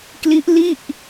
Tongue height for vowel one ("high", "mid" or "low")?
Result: high